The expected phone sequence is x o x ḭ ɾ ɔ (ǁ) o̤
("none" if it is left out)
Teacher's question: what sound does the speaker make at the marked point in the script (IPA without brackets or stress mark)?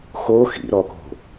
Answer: k